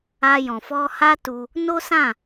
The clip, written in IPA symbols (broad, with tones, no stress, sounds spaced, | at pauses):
a˧ j ɔ̃˨ f ɔ˧ h a˦ t u˧ | n o˦ s ã˦˨